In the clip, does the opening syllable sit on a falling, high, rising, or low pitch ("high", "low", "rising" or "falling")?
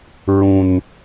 high